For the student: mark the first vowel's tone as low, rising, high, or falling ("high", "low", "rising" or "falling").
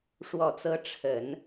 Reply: low